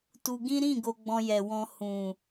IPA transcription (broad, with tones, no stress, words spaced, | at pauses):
tu˧ɡĩ˦ ɾĩ˦˨ ɡo˧ɡ͡bɔ̃˧jɛ˨ wɔ̃˧ hũ˨